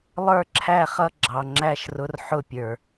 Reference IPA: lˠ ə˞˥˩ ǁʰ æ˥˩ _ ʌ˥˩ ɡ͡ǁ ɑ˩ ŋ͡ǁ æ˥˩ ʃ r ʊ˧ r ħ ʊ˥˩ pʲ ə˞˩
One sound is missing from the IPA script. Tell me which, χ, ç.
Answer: χ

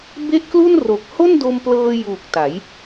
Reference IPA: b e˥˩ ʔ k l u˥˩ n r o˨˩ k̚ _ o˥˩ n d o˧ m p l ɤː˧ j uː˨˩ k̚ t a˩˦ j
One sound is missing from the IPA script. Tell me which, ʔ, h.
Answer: h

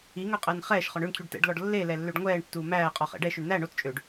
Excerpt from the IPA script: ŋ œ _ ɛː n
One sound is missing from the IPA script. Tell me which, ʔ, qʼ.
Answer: qʼ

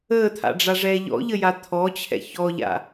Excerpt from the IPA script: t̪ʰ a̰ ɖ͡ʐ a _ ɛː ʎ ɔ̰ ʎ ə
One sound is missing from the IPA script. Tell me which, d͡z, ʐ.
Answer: ʐ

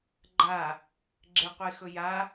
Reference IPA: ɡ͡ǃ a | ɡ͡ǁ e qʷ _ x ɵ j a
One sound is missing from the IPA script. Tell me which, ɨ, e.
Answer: e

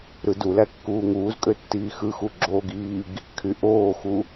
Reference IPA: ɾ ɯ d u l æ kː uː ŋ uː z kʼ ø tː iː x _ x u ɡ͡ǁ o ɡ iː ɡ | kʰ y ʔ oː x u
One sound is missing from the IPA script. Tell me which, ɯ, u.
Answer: ɯ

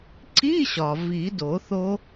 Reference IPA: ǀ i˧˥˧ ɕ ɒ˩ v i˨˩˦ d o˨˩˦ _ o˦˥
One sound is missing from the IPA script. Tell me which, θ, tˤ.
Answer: θ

